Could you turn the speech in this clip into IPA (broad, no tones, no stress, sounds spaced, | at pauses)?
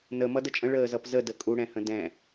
n ə m ʌ d ə t͡ʃʼ ə̃ ɭ əː z ʌ p z ə d ə kʼ u ɽ ɛ̃ h ə̃ d ɛ̃